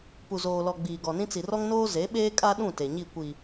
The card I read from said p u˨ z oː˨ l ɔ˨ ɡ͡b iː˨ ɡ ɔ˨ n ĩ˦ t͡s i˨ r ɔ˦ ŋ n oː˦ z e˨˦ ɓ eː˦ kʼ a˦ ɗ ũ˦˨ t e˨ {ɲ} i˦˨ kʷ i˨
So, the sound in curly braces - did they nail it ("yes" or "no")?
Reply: yes